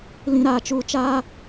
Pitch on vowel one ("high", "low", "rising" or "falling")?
low